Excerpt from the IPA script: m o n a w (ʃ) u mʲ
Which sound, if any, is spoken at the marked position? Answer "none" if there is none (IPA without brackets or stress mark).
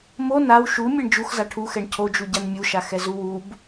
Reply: ʃ